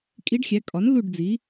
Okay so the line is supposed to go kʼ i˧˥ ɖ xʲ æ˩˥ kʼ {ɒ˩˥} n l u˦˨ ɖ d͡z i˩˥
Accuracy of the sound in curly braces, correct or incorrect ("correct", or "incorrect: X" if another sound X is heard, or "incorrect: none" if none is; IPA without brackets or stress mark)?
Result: correct